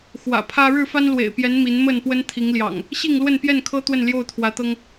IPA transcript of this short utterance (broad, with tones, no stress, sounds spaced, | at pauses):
x w ä̰˨˩ pʰ ä˦ ɻ ɻ̩˥˨ f a˦ n l w ḛ˨˩ ɪ̯ p j ɛ˨˦ n m i˨˦ n m ə˥˨ n p w ə˦ n t̪ʰ i˨˦ ŋ l j ɑ̰˨˩ ŋ | ɕ i˥˨ ŋ l w ə˥˨ n p j ɛ˥˨ n kʰ ɤ˦ t̪ w ə˥˨ n l j o˥˨ ʊ̯ t̪ʰ w ä˨˦ t̪ ɤ˦ ŋ